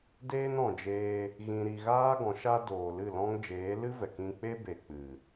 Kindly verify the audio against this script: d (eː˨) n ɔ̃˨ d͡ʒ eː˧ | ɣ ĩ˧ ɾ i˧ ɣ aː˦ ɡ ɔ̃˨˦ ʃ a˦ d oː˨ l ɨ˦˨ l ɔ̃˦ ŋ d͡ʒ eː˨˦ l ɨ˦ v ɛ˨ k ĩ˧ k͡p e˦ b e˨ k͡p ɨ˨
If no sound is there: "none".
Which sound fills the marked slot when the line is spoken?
eː˦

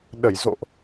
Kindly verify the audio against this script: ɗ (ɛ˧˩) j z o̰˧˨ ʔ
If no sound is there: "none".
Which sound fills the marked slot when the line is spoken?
ə˧˩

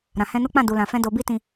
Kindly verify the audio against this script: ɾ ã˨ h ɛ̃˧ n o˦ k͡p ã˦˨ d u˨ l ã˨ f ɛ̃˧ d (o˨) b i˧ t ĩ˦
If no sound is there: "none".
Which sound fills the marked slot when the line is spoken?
o˨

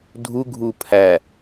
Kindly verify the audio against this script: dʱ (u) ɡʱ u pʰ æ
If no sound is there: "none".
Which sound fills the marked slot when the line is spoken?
u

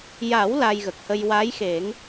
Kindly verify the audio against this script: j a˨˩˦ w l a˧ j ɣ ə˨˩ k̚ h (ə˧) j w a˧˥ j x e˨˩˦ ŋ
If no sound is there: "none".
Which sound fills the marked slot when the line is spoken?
ə˧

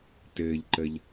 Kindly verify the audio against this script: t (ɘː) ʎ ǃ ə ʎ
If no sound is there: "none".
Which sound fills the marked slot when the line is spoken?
ɘː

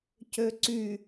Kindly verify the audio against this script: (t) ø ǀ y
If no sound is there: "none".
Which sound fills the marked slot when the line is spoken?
c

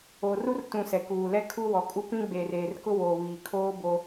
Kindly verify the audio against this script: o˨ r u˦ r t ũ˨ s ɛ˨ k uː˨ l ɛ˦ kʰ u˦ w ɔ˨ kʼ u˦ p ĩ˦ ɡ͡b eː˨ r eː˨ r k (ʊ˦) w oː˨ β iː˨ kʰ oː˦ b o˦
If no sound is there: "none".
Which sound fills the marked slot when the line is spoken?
ʊ˦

